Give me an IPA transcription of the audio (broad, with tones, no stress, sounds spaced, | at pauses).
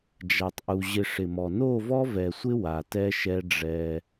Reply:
d͡ʒ a˨ tˤ ʔ u˨ ʑ ɪ˨ ʂ ɪ˨ m ɔ˨ n o˦˨ v ɔ˦ v ɛ˨ sʷ ɪ˦ w a˨ t ɛ˦ ʃ ɛ˦ ɖ͡ʐ ɛ˦